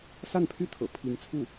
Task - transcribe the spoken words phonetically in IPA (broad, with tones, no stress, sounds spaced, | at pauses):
s a˥˩ n pʰ y˥ t̪ʰ ɤ̰˨˩ pʰ i˧˥ ŋ t͡sʰ u˥˩